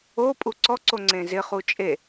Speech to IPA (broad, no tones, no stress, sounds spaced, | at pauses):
o pʼ u ǀ ɔ ǀ o ŋ͡ǀ ẽ z ɪ χ u t͡ʃʼ e